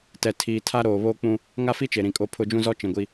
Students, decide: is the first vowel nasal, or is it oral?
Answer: oral